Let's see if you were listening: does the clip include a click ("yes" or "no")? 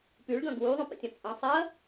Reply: no